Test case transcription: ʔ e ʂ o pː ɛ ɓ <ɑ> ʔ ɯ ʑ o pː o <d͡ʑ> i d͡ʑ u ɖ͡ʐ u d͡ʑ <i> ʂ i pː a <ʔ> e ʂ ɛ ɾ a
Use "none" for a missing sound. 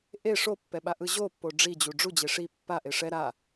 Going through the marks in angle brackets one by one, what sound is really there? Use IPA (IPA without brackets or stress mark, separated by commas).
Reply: a, ɖ͡ʐ, e, ʔ